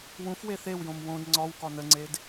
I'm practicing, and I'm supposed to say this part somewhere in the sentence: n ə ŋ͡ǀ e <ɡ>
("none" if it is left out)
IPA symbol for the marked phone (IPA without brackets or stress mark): d